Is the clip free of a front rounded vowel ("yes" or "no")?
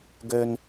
no